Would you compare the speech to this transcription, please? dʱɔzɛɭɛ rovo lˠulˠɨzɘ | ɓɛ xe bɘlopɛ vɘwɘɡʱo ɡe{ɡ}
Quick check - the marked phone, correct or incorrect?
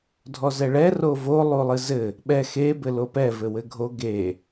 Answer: incorrect